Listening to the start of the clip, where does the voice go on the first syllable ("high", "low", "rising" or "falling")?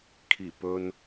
low